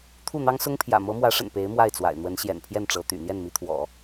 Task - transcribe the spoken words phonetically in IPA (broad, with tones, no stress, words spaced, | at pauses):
t̪ʰu˥˩n̪ɑ˥ŋsʊ˥ŋpʰjä̰˨˩ mɤ˧˥mwä˧˥ʂə̰˨˩n pe˧˥ɪ̯ mwa˥˩ɪ̯t͡swa̰˨˩ɪ̯n̪wə˧˥n ɕjɛ̰˨˩npʰjɛ˥˩nʈ͡ʂɤ˧˥t̪y̰˨˩ n̪jɛ˥˩nmi˧˥t̪ʰwɔ̰˨˩˦